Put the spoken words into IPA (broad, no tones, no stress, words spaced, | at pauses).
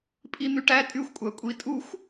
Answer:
pʼin̪yʈæ tʼyxʷkʷʼækʷʼi tʼuxʷ